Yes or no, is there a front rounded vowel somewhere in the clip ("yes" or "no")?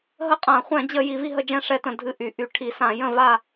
yes